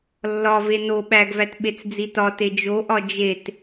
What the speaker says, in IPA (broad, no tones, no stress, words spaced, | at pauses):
lːɒve no ɓæɡvæt ɓet͡sd͡zitɒte d͡ʒoʔɒ d͡ʒet